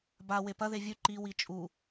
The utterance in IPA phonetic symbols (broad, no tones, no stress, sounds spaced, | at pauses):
b a w e p ɐ ð e vʲ ʉ ǃ i w i t͡ʃʼ u